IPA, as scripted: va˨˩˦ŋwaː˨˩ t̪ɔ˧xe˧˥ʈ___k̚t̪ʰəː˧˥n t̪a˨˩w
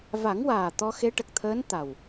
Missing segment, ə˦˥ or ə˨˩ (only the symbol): ə˨˩